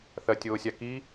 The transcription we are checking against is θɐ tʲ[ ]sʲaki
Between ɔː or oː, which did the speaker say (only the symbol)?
oː